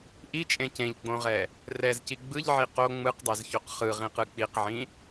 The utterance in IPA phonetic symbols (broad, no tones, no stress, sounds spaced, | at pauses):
ʔ i t͡ʃʼ ẽ c ẽ ʎ ɡ͡b õ ʁ ɛ | r ɛ z c i ɡ͡b ɯ ʎ ʕ i q o ŋ͡m ɯ q dˤ ɛ z ç o q χ ɯ ʁ ĩ q ɯ k͡p i q ʕ ĩ